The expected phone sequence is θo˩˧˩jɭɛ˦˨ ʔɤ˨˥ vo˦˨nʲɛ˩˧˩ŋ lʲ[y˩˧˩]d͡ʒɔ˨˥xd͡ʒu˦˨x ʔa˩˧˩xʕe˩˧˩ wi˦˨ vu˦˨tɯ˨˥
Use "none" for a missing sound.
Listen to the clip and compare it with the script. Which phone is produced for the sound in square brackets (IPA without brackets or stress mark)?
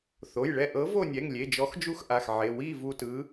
e˩˧˩